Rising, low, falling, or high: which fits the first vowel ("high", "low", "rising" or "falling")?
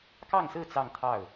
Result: falling